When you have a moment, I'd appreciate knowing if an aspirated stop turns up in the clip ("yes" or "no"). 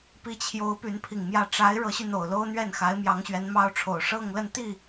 yes